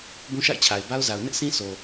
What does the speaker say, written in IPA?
b ũ˦ ʃ a̰˦˨ ɪ̯ t͡ɕʰ a˨ ɪ̯ b a˦ ʊ̯ z a˨ ʊ̯ n ɪ˦ ʔ sʰ ĩ˦ sʰ o˨

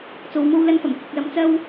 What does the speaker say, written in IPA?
t͡s o˨ w m o˧ w l ɐ˧ n f ɐ˨˩ m kʰ ɪ˨ k̚ l ɐ˨˧ m t͡s ɐ˥ w

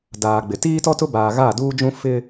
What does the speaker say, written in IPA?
d aː˨ ɡ͡b ɪ˨ t iː˦ t ɔ˦ t ʊ˦ b aː˨ ɣ a˦˨ d uː˦ d͡ʒ ũ˦ f ɪ˦

